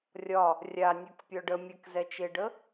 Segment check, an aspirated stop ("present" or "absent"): absent